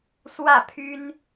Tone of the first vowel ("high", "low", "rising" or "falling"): falling